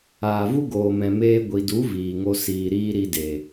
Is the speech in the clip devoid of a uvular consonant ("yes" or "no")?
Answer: yes